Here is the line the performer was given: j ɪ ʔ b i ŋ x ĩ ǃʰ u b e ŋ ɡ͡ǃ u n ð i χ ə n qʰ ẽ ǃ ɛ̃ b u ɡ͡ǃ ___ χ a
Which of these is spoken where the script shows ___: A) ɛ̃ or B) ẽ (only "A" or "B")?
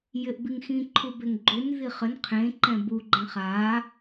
A